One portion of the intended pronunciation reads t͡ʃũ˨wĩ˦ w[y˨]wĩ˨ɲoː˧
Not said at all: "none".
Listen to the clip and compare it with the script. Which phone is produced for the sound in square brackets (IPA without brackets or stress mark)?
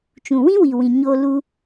i˨